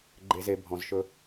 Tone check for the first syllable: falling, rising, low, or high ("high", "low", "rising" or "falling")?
low